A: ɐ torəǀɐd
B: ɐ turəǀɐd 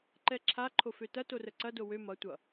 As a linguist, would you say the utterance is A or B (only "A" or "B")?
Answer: A